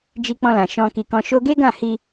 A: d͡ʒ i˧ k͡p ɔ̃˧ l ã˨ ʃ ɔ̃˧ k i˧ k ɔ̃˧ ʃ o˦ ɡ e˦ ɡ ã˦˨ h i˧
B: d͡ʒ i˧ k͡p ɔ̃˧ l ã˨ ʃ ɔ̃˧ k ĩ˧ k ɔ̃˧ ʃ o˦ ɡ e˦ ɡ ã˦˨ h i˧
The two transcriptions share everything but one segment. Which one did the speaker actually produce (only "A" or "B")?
A